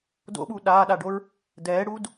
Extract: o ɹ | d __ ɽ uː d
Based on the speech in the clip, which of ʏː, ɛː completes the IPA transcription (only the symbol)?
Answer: ɛː